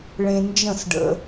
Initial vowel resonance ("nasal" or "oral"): nasal